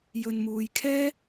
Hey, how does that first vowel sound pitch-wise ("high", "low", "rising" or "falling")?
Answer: low